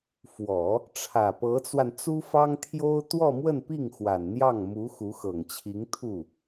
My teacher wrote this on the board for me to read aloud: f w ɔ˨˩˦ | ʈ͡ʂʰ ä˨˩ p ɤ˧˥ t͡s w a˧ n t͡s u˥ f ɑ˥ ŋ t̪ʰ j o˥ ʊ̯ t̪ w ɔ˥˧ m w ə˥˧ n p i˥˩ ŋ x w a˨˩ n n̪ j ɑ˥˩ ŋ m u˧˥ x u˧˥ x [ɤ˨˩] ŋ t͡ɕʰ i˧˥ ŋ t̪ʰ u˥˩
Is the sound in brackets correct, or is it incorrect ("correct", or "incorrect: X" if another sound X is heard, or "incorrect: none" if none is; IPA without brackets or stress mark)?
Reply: correct